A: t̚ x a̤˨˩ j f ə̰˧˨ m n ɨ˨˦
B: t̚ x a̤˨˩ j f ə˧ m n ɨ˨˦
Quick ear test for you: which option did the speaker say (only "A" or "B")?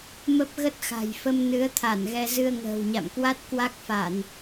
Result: B